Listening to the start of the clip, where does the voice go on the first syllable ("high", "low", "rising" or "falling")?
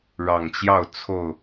low